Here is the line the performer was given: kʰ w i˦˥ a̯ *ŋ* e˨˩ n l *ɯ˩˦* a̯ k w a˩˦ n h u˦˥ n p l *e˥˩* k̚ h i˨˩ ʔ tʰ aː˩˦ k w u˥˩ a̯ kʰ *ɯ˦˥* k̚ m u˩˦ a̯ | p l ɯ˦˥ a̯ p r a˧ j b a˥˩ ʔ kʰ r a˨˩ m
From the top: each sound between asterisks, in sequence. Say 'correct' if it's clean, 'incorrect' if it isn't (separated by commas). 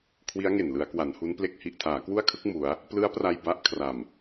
correct, correct, correct, correct